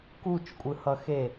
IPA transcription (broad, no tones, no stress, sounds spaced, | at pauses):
k u t͡ʃ kʷʼ ɯ h ʌ x e